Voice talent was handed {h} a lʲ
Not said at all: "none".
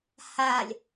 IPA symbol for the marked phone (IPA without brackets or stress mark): h